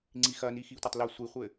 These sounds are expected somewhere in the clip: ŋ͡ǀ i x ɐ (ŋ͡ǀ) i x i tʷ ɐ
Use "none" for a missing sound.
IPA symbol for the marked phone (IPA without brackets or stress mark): n